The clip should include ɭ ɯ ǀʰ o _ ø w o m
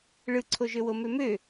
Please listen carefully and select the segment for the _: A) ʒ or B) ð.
A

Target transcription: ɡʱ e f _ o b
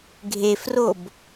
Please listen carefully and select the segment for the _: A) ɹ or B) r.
B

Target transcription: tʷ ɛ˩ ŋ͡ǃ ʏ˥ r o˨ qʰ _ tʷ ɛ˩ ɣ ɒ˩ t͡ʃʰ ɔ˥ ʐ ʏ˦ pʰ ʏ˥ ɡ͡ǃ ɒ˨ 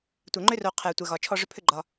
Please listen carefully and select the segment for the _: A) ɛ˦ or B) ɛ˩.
B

